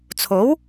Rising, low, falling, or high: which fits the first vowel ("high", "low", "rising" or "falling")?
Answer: rising